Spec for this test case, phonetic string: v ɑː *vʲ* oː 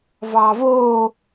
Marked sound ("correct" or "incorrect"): incorrect